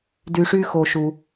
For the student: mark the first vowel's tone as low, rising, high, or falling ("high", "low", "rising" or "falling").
low